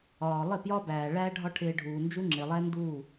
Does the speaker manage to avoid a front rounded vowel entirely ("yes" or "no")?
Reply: yes